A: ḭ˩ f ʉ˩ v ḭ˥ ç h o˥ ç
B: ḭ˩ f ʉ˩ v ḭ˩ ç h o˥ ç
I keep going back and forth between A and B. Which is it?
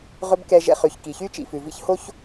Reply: A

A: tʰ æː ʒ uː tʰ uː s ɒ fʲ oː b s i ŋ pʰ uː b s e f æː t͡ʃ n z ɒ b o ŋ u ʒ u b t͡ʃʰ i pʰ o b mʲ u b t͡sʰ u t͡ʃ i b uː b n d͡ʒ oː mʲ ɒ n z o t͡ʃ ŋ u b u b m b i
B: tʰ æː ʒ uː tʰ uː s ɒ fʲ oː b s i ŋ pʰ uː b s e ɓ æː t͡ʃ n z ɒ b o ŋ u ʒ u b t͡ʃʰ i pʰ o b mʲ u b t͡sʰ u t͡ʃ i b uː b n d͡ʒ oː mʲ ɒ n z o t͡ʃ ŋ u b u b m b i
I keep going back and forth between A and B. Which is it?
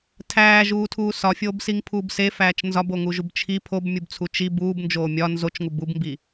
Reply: A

